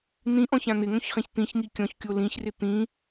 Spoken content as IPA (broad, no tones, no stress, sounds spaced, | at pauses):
n̪ ĩ ʔ ɔ̃ ç ã n̪ ɪ ŋ õ ç χ ĩ ç t̪ ĩ ç ŋ i kʲ ɔ̃ ç kʲ o l ĩ ç r ɪ t̪ ĩ